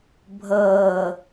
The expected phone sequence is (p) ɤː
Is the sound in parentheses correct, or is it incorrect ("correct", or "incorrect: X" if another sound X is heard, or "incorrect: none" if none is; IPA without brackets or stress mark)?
incorrect: bʱ